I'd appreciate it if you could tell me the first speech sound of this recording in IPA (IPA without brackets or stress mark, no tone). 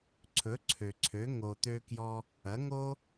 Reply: ǀʰ